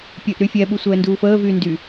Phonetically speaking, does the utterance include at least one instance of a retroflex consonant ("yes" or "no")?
no